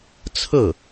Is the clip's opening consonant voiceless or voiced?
voiceless